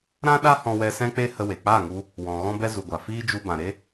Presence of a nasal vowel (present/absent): present